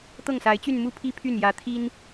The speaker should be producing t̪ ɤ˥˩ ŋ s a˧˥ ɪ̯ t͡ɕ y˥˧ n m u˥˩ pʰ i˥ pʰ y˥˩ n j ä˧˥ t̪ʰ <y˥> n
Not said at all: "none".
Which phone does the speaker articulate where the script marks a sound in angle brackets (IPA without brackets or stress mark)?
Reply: i˥